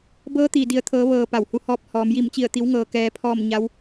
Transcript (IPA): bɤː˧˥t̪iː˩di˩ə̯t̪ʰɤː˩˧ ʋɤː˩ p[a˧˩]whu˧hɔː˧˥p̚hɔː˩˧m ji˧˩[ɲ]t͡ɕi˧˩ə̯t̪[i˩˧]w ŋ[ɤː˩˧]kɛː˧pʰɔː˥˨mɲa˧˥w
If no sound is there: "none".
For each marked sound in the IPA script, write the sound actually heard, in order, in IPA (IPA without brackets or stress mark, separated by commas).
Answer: a˧˩, m, i˩˧, ɤː˩